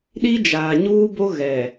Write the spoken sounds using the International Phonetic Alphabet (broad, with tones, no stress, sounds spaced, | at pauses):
ɗ i˦ d͡ʒ aː˨ ɲ uː˦ b o˦ ɣ ɛ˨